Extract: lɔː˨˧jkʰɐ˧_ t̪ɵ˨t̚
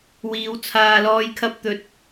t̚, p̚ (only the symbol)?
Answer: p̚